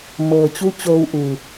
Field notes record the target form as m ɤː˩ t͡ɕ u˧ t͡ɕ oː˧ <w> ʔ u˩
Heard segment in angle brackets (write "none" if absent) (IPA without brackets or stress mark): w